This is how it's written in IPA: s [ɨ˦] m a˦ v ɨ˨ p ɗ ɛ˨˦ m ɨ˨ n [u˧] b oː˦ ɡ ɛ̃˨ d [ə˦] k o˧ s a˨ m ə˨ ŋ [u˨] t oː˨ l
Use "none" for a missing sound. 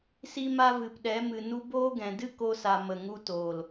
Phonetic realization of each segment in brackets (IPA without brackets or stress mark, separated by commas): i˦, u˧, ɨ˦, u˧